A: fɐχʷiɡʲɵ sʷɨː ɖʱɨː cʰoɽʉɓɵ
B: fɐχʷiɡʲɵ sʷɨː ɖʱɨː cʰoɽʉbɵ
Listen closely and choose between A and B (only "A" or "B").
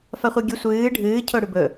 B